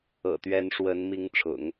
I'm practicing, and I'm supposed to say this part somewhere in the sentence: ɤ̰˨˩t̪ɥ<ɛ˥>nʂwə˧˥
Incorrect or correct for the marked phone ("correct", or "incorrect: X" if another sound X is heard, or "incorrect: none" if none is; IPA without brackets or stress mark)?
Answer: incorrect: ɛ˧˥